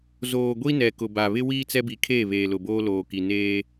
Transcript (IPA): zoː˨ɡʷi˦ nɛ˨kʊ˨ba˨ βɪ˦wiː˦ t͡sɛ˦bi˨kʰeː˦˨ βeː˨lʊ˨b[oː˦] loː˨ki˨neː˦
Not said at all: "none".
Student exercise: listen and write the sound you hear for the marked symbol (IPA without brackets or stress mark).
oː˦